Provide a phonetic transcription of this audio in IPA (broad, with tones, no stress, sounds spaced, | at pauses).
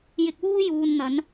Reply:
j ɪ˧ k̚ w uː˥ j uː˨ n n̪ ɐ˨˧ n